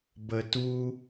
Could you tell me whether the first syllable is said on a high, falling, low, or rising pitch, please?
low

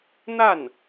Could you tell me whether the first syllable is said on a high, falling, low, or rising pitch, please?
falling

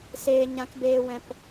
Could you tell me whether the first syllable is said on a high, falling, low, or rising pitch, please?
low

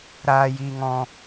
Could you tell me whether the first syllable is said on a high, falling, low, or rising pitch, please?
high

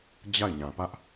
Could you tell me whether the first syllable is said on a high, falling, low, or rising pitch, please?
falling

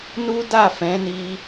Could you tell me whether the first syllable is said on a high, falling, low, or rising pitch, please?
high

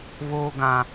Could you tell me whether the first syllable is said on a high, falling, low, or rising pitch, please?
high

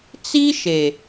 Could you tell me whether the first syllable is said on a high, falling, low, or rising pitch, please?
high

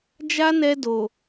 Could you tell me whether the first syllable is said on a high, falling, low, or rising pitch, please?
high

